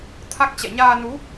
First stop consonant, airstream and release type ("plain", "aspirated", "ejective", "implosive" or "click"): aspirated